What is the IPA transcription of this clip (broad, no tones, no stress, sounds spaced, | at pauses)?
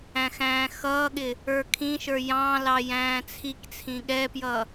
æ̃ x æ̃ː x ʌː ɠ ɪ | ə˞ kʰ ĩ ʃ ə˞ j ɑ̃ l ɑ j æ̃ː t͡sʰ i k t͡sʰ ĩ ɠ ɛ p j ʌ